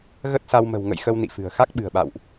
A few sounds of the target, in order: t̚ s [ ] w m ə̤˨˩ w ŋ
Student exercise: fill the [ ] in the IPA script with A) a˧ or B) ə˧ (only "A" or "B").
A